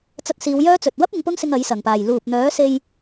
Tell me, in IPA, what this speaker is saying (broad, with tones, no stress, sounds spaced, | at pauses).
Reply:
t͡s ɐ˧ t̚ s iː˨˧ w j œː˥ t͡s ɵ˨ t̚ w ɐ˥ p̚ ɪ˨˧ ŋ p ʊ˥ ŋ s ɪ˧ ŋ ɐ˨˥ j s ɐ˨˩ ŋ p aː˨˩ j l uː˨ p̚ n̪ œː˨˥ s e˧ j